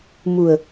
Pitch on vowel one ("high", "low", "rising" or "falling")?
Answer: low